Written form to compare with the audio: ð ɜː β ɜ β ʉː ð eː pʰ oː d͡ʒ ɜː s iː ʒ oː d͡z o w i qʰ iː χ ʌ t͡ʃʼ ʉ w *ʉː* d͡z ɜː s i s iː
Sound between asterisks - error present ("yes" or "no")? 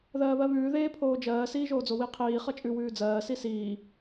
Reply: no